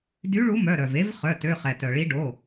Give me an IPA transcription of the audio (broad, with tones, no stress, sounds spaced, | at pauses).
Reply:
d y˨˥ ɭ u˨˥ m œ˩˧˩ ɾ œ˩ v e˨˥ v χ œ˩˧˩ t ø˩˧˩ χ ɛ˩ t œ˩ ɭ i˨˥ ɖ o˩˧˩